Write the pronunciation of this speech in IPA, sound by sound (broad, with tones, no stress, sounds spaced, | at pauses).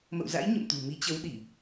m ə̰˧˨ w z a̰˧˥ j ɲ ə̰˧˨ m t̪ ṳ˨˩ m i˨˦ t͡ɕ ə˨˦ w ɗ i˧˩˨